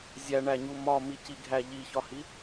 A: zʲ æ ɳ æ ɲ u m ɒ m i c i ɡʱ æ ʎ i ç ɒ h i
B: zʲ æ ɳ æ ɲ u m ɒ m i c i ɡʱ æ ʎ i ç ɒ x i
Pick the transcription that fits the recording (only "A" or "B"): A